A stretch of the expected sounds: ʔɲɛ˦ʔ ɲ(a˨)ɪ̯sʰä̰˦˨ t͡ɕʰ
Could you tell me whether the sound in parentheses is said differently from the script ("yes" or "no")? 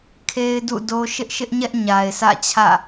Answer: no